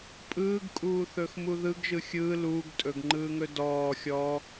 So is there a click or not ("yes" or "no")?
yes